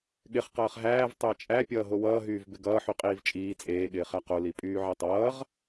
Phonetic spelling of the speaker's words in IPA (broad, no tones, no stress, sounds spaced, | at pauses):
ɠ ɪ χ q ʌː χ ɦ æː v tˤ ɪː t͡ʃʼ æ pʲ ʌː ɦ o w ʌː ɦ yː v b ɪ ɡ ʌː ħ y qʼ iː v t͡ʃʼ iː t͡sʼ eː ɠ ɪː χ æ q o l i pʼ yː ʕ e tˤ ʌː ʁ